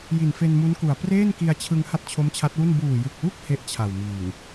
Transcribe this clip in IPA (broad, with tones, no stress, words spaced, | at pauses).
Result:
ji˨˩nfe˧nmu˦˥nku˨˩a̯ preː˥˩nki˧a̯t͡ɕʰɯ˧ŋ ha˥˩t̚t͡ɕʰo˦˥mt͡ɕʰa˦˥t̚wu˥˩n buː˨˩jɯ˨˩k̚wu˥˩k̚ he˥˩ʔt͡ɕʰa˨˩wmiː˨˩ŋ